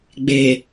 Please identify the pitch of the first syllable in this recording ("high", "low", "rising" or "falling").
low